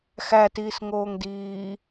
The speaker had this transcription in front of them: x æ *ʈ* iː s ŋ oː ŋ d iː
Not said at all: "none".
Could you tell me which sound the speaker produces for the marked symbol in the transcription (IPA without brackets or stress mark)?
t